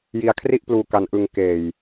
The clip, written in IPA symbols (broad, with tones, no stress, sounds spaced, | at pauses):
j i˧ a̯ kʰ r i˥˩ ʔ p l uː˧ k a˧ n ʔ ɯ˧ ŋ k eː˨˩ j